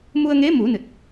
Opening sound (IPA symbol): m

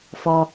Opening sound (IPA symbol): f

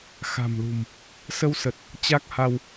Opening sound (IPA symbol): x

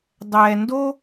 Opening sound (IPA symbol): dˤ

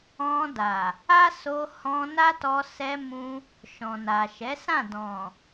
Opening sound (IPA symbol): ɔ̃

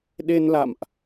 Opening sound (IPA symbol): ɗ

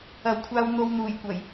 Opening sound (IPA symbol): ɐ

